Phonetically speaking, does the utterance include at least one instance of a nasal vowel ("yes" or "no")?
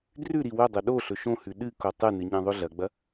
yes